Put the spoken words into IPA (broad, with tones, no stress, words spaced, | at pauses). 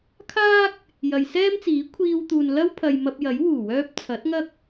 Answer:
kʰaː˥k̚ | jɐ˨jsɛː˥mt͡siː˨˥ kʷʰiː˧wt̪uː˨n lɐ˥wpʰɐ˨j mɐ˧p̚jɐ˨˥j wuː˨˩wœː˧p̚ t͡sʰɐ˨˥t̚ŋɐ˥k̚